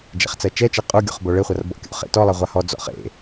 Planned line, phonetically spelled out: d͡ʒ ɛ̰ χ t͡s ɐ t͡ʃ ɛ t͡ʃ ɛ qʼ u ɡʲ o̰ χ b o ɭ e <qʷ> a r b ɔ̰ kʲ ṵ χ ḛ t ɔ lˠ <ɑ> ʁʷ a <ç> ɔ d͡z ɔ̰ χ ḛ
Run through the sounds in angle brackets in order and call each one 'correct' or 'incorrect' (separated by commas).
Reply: incorrect, incorrect, incorrect